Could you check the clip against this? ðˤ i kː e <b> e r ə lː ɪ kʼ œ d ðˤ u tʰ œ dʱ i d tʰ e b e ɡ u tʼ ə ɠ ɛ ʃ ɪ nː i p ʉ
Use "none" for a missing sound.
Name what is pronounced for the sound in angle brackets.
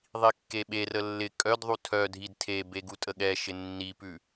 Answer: ɓ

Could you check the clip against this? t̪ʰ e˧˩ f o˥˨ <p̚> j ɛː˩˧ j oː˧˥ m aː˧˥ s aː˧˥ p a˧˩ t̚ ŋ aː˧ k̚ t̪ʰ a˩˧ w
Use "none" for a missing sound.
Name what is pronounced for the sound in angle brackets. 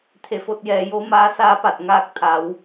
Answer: t̚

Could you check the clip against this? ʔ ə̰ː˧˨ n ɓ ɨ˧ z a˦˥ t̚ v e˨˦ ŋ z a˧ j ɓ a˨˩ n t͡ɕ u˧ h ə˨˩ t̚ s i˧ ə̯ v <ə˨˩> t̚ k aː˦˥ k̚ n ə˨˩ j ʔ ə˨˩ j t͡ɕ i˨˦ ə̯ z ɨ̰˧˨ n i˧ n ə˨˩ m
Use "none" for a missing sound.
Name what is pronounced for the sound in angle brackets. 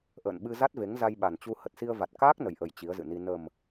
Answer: a˨˩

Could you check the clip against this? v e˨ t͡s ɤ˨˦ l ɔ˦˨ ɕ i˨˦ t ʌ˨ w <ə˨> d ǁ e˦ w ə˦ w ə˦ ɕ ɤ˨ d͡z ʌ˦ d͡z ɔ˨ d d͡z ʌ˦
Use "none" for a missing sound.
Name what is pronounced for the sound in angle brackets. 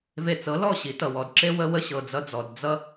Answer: ɔ˨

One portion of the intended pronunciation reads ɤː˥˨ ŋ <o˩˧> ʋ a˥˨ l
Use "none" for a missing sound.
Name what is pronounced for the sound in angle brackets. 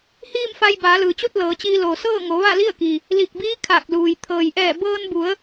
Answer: o˩˧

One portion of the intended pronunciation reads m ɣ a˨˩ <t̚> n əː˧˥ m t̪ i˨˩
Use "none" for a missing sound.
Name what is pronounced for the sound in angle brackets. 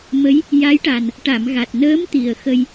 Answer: t̚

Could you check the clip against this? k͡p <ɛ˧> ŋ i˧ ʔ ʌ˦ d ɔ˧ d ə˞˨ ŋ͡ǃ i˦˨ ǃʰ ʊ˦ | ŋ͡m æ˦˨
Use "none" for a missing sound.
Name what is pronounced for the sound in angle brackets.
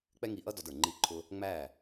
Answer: ɛ˦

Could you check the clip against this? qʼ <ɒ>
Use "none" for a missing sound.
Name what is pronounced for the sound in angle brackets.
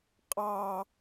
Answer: ɑ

